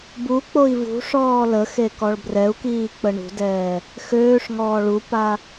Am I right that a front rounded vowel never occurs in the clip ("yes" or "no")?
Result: no